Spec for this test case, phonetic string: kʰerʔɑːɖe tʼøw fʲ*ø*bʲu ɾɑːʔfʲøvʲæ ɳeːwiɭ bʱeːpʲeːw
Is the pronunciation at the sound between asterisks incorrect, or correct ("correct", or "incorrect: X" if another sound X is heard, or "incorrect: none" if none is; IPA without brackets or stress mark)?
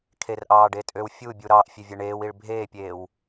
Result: incorrect: u